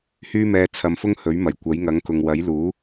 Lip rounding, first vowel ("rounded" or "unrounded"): rounded